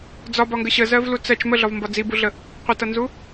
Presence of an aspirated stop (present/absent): absent